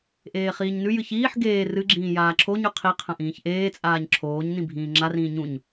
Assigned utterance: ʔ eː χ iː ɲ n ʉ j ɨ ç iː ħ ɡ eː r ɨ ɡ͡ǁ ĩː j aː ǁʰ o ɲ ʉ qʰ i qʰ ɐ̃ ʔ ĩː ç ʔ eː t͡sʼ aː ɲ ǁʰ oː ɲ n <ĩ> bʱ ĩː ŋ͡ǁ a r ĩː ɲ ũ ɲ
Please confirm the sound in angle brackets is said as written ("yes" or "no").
yes